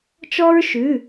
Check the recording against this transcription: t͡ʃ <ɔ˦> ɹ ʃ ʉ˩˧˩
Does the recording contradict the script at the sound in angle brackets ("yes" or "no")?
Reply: no